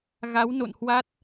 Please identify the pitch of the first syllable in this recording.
rising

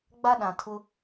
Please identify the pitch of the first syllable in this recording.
high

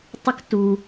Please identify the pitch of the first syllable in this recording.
high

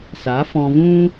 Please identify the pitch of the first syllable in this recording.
rising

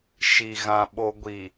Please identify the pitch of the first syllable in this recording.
low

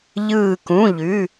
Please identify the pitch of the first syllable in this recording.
falling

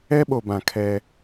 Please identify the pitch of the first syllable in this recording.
high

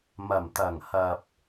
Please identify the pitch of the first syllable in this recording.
low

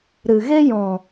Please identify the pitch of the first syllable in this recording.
low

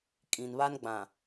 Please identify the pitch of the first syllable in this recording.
low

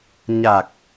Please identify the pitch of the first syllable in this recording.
low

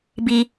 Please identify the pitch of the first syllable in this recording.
low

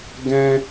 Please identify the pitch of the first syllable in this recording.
high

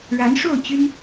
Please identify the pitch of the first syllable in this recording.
rising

